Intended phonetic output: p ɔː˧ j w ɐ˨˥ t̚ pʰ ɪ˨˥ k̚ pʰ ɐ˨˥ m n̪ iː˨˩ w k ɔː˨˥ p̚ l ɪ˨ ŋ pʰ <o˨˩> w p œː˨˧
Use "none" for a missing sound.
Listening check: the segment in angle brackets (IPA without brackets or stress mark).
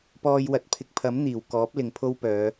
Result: o˥